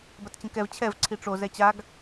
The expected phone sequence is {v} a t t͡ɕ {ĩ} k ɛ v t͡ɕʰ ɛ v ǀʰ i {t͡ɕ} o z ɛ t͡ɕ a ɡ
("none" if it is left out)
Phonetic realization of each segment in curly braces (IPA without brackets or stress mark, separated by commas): b, ĩ, ʈ͡ʂ